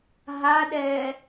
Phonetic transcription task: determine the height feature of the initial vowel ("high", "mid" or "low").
low